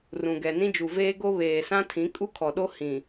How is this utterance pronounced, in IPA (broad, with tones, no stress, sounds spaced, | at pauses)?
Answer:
r ũ˨ ɡ ɛ˨ n ĩ˦ d͡ʒ u˨ v eː˦ ɡ o˦ β eː˨ s ã˦ tʰ ĩ˨˦ kʼ u˦ kʰ ɔ˨ ɗ o˦ h ĩ˨